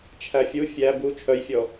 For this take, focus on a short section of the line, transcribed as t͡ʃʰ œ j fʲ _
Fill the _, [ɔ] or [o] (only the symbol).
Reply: ɔ